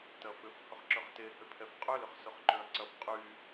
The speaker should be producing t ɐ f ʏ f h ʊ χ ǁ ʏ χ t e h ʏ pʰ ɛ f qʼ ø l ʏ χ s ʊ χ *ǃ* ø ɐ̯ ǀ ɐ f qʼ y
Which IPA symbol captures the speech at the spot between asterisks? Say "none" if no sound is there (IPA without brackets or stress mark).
ǃ